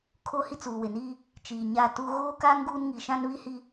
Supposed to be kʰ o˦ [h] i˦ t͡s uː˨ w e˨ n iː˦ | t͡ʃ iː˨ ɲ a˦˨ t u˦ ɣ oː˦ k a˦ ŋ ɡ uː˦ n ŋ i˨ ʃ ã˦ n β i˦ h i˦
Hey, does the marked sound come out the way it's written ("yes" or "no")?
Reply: yes